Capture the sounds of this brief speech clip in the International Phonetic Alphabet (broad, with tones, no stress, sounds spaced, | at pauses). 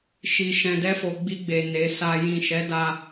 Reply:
ʃ i˧ ʃ ɛ̃˧ d ɛ˦ f o˧ ɡ͡b i˧ ɡ͡b e˨ n e˨˦ s a˧ j ĩ˨ ʃ ɛ˨˦ d a˧